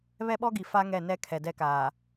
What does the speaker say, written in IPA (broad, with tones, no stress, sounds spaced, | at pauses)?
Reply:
β ɛ˦ ɓ ɔ˦ ɡ i˨ f a˦ ŋ ɛ˦˨ n ɛ˦ kʰ ɛ˨ d ɛ˦ k aː˨